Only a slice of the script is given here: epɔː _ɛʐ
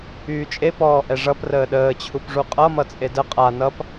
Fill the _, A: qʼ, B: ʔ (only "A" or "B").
B